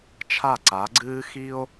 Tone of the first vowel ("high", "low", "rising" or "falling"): falling